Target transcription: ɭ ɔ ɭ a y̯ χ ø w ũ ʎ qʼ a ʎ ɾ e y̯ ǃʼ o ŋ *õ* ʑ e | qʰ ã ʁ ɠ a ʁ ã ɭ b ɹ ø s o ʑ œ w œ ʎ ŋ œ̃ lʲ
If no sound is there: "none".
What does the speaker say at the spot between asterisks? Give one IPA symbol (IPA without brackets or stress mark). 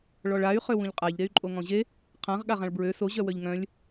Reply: ɔ̃